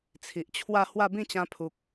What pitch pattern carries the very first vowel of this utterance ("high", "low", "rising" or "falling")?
low